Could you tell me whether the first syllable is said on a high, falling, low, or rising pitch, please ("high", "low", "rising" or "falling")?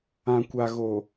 low